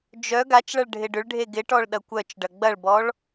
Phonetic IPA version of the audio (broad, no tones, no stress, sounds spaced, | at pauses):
d͡ʒ œ ɡ a t͡ʃ ɭ ɐ ɭ ɖʱ ɪ ɖ ʏ ɭ ɖʱ e ɡ ɪ ʈ ɔ ɭ ɗ ɐ kʷ œ t͡ʃ ɖ ɐ ɡ͡b ɐ ɭ b ɔ ɭ